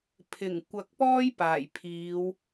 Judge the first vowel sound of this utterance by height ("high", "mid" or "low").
high